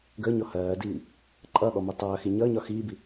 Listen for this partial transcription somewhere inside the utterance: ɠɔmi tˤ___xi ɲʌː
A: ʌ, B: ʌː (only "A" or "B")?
B